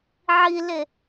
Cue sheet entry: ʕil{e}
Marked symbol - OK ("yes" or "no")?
yes